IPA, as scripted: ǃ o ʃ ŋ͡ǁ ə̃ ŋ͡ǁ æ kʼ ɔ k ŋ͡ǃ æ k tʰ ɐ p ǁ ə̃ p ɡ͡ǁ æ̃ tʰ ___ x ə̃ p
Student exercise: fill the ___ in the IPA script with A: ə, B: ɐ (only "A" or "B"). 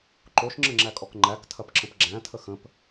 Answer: A